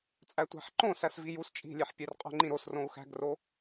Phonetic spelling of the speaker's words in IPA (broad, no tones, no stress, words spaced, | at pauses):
t͡sʼætʷæ̤ħǃõ sæsvijus t͡ʃʼi̤lʲeħ pʲerqʼo̤ŋ͡ǃĩɾos rõu̯xæ̤ɡro